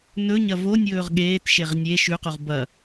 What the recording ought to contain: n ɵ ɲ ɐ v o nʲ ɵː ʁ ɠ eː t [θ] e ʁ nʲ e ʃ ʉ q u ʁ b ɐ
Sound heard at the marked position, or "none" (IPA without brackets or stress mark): ʃ